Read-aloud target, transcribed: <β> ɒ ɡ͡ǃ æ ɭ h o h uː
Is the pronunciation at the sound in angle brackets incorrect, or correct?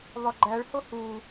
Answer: correct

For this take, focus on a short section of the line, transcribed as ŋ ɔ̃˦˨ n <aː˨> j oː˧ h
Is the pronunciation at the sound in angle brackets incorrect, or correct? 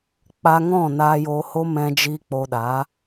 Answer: incorrect: aː˧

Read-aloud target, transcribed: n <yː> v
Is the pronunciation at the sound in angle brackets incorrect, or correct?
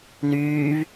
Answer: correct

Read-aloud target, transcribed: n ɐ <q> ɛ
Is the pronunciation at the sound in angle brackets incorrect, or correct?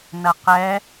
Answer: correct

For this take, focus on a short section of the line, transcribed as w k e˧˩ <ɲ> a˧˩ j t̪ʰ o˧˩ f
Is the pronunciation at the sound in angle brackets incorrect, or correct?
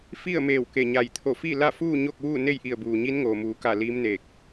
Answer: correct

